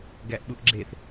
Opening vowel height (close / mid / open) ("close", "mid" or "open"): open